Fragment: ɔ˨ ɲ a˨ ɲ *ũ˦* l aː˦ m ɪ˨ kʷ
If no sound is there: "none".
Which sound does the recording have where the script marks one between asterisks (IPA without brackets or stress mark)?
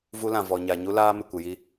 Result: u˦